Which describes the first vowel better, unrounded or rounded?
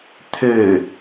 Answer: rounded